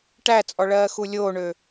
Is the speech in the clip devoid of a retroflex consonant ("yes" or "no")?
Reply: no